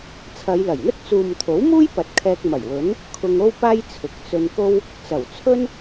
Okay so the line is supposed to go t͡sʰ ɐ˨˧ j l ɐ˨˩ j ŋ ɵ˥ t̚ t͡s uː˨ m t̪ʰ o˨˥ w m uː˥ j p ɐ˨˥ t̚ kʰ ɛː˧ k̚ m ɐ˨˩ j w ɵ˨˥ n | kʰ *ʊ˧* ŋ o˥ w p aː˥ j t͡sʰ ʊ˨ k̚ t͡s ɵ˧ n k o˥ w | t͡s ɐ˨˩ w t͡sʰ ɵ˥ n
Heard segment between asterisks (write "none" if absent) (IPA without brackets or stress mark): ʊ˧